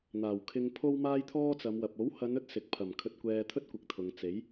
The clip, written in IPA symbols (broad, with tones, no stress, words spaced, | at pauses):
n̪aː˨˩wkʰɪ˧ŋpʰo˥wmaː˥j t̪ʰɔː˥t͡sɐ˨˧mwɐ˨p̚ o˨˥whɐ˨˧nɵ˥t̚ sɪ˨k̚pʰɐ˨˩m kʰɵ˧t̚kʷɛː˧t̪ʰɵ˥t̚kʷɪ˨˥k̚ t̪ʰʊ˨ŋt͡se˨˥j